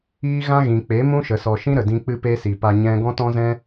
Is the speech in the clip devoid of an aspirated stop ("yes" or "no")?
yes